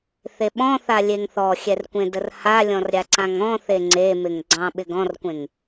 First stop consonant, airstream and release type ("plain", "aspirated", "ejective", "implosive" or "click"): implosive